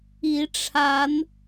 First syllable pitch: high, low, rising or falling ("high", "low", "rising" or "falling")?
rising